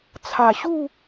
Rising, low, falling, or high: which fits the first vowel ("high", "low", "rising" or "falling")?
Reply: low